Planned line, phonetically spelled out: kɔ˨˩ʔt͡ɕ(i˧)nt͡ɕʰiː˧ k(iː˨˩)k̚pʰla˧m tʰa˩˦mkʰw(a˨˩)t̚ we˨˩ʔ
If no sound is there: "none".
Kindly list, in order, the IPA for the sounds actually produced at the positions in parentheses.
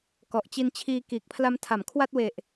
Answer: i˧, iː˨˩, a˥˩

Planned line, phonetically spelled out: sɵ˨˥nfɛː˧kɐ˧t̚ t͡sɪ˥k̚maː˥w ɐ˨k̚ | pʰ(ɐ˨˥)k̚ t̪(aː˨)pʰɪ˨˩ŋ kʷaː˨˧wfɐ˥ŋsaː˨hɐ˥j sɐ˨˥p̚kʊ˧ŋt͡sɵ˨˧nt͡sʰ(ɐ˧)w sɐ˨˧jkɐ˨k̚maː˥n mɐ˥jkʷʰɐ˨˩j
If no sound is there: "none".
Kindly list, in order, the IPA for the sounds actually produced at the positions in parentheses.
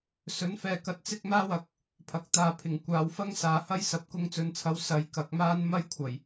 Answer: ɐ˨˥, aː˨, ɐ˨˧

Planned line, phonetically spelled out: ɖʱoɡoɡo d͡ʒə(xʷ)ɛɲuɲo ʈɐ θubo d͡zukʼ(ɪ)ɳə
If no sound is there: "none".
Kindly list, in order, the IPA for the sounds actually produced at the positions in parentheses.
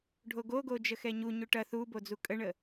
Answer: x, ə

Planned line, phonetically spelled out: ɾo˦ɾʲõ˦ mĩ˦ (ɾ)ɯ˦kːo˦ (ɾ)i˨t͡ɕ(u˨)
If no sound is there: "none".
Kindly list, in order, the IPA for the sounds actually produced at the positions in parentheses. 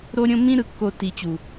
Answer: ɾ, t, u˨

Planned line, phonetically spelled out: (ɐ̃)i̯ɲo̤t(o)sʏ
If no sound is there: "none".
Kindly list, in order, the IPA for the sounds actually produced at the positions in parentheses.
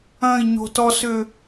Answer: ɐ̃, ɔ

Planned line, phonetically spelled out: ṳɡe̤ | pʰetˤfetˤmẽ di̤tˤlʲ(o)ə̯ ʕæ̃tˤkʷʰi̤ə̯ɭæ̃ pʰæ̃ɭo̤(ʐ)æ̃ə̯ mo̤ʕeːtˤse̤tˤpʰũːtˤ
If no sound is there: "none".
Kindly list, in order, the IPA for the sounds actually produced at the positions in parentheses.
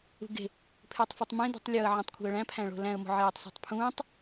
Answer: o, l

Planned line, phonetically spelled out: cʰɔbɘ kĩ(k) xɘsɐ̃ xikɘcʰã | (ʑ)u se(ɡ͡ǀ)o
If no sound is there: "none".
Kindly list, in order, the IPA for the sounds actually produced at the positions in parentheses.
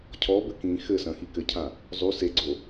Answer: none, zˤ, ɡ͡ǀ

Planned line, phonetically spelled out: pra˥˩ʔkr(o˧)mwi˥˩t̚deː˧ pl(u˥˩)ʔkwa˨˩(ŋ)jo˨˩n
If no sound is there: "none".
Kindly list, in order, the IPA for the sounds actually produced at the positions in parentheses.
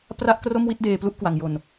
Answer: o˥˩, u˥˩, ŋ

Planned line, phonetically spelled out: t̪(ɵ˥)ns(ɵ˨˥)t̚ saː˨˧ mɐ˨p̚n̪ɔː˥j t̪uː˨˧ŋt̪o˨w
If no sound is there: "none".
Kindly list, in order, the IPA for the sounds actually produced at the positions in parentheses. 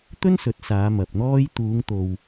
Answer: ɵ˥, ɵ˨˥

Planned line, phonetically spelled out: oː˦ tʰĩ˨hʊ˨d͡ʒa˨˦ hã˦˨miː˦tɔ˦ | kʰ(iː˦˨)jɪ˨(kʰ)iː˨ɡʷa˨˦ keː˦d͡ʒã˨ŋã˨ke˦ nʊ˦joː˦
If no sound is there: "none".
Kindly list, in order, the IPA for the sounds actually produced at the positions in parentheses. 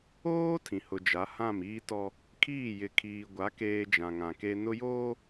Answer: iː˦˨, kʰ

